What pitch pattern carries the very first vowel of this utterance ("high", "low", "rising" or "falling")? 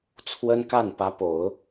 high